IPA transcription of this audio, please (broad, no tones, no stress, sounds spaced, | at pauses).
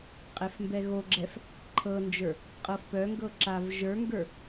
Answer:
qʼ ɛ f m b ɛ ɣ o ɡ͡ǁ ɛ f | ǃʰ ɤ n d͡ʒ ə˞ | qʼ ɤ f p œ ŋ ɡ ɤ ǁ a v ʒ ə˞ ŋ ɡ ə˞